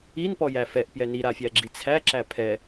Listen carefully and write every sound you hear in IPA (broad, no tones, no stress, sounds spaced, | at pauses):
i n p ɔ j æ f ɛ ʔ p j ɛ n i ɾ a fʲ æ ɡ͡ǁ i t͡sʰ æ ǁ æ pʰ ɛ